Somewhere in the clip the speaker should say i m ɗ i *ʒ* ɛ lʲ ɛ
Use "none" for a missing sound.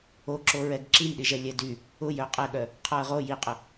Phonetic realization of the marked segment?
ʒ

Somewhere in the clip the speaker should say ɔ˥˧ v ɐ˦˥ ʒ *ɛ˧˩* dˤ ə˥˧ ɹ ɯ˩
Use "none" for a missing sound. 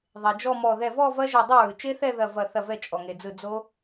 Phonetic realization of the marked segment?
ɛ˧˩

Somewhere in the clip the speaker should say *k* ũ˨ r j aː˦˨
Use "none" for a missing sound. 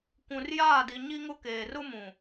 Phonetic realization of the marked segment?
kʷ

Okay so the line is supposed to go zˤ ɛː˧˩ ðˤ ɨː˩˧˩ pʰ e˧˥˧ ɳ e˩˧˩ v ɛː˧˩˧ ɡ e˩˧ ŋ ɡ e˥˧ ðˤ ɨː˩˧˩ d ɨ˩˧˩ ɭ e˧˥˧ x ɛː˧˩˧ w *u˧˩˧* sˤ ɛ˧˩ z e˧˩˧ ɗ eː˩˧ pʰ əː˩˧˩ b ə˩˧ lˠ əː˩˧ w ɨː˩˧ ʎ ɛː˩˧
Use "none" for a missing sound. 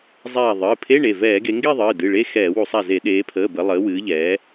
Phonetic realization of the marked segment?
u˧˩˧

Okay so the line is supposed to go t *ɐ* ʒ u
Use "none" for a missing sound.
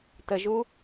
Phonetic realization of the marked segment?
ə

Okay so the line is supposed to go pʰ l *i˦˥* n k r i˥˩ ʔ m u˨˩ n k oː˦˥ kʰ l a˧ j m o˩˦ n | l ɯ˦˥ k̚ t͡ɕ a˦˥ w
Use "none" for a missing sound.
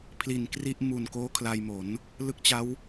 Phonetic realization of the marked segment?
i˨˩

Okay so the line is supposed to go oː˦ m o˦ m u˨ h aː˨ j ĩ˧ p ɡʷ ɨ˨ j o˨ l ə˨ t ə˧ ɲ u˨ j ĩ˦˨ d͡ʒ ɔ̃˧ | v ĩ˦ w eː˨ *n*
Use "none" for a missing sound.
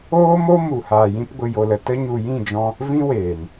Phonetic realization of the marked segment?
n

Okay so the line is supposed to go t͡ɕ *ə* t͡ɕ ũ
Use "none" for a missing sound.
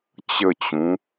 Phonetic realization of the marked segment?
ə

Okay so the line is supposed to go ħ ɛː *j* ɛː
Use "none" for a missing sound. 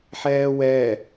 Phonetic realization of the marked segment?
w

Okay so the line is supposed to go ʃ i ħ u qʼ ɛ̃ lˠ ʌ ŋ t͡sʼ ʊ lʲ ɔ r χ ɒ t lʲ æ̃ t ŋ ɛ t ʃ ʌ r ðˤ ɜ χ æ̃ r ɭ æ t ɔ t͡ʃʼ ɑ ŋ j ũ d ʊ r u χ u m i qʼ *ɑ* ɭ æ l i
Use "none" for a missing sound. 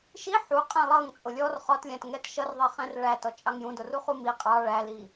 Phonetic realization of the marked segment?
ɑ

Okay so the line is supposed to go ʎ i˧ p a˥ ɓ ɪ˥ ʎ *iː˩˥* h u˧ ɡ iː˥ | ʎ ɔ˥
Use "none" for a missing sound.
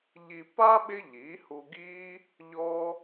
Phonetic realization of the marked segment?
iː˩˥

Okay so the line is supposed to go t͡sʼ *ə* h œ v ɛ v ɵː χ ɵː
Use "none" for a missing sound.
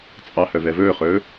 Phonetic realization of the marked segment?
ɑ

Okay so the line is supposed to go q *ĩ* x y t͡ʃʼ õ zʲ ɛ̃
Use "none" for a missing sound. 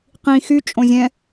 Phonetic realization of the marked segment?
ĩ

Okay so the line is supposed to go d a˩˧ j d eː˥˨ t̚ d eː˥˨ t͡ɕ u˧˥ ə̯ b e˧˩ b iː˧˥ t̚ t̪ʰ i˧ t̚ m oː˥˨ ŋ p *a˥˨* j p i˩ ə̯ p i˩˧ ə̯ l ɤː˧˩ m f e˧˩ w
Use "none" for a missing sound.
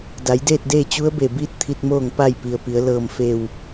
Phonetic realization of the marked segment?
a˥˨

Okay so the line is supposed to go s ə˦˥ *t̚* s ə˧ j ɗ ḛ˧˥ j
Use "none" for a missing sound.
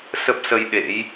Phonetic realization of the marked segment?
p̚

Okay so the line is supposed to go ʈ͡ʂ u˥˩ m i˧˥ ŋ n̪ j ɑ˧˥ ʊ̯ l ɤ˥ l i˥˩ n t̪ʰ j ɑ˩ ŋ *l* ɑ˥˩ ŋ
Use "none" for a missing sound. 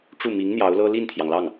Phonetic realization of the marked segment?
l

